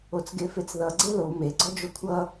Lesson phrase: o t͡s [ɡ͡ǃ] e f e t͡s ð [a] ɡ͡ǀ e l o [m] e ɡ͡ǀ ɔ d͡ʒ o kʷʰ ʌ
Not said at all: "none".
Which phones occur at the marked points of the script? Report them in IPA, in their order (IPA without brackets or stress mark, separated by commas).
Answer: ɡ, ʌ, m